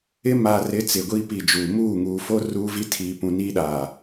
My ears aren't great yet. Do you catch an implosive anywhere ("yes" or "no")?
yes